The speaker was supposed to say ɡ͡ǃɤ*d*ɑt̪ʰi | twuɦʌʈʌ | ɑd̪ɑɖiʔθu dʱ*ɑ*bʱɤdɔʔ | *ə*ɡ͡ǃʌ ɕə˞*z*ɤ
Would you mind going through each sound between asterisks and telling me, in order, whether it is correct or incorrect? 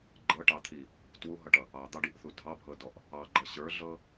incorrect: ʈ, correct, incorrect: ɑ, incorrect: ɮ

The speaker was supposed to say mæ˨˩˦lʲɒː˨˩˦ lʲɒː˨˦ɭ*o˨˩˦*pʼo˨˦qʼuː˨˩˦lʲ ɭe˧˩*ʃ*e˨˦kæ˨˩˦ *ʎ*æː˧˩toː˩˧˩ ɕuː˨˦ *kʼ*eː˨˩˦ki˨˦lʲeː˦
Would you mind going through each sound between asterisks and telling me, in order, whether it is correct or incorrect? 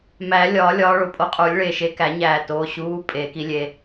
correct, correct, incorrect: ɲ, incorrect: pʼ

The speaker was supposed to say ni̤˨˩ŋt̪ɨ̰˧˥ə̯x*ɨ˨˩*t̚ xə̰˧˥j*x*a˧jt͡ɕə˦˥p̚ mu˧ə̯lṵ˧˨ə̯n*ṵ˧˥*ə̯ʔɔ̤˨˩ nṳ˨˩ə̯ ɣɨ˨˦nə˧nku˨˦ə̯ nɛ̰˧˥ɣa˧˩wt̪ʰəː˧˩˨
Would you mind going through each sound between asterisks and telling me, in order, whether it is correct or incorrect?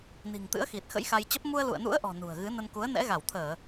incorrect: i˨˩, correct, correct

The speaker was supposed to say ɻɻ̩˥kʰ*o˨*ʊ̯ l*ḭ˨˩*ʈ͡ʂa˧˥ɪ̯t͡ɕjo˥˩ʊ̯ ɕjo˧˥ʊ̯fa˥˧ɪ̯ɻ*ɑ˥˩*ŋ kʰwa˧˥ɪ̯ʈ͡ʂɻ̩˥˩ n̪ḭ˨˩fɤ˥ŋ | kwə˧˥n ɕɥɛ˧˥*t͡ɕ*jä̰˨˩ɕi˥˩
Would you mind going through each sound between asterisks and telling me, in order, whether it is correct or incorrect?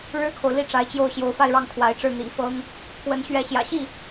correct, incorrect: i˥˩, correct, incorrect: ɕ

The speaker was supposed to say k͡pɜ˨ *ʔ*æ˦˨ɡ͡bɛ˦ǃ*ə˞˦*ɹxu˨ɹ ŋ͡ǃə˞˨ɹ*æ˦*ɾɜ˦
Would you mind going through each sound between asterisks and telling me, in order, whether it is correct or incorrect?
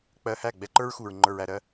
incorrect: h, correct, incorrect: æ˨

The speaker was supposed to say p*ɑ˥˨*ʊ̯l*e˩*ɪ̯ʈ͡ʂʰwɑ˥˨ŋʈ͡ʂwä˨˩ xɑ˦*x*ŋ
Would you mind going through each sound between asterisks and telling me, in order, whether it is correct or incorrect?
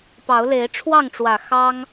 incorrect: ɑ˨˦, incorrect: e˨˦, incorrect: none

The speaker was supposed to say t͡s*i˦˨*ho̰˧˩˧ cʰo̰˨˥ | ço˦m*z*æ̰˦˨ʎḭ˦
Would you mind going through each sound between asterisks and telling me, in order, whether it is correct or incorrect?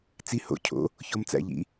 correct, incorrect: t͡s

